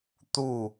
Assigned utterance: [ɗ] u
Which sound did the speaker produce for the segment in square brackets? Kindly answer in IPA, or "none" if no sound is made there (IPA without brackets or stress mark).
t̪